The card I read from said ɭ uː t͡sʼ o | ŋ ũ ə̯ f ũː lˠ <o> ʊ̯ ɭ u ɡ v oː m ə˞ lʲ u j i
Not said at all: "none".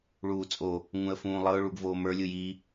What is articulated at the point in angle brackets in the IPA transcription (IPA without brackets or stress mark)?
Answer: ɤ